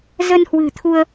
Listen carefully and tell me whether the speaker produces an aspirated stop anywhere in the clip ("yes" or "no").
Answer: yes